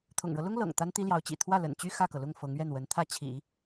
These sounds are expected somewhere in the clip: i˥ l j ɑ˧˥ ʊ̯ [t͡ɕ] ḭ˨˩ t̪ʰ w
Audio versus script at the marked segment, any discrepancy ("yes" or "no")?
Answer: no